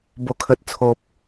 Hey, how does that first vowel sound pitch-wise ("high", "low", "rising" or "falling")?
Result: low